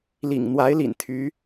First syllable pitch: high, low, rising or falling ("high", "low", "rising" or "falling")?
low